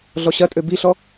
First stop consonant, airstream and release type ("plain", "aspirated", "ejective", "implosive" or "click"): ejective